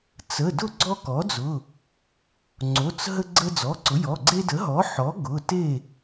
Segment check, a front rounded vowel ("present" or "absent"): absent